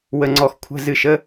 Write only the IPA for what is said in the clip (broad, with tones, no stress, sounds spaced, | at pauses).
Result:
w ə˧˩ ŋ͡ǀ ɔ˧˩ x kʷʰ ə̤˧˥˧ z ɨ˧˩ ʃ ə˧˥˧